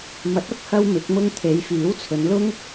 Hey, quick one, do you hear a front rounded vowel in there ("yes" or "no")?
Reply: no